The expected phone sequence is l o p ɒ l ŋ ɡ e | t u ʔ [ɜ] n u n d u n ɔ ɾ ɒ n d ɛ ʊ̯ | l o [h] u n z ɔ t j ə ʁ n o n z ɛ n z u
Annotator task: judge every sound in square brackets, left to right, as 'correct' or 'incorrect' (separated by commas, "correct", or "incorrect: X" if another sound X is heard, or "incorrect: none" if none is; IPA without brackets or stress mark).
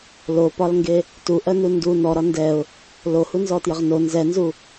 correct, correct